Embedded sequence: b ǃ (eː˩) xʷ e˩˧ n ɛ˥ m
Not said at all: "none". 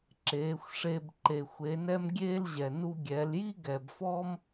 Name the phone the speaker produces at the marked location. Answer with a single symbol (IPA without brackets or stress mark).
e˩